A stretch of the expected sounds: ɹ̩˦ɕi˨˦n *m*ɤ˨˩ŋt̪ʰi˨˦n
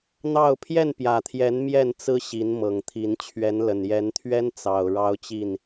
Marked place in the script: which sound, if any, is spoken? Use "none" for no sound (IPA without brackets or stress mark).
m